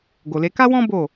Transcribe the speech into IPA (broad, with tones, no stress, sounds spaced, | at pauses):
ɡ o˨ l e˧ k a˦ w ɔ̃˦ b o˦˨